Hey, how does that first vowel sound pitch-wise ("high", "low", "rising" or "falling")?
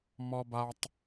high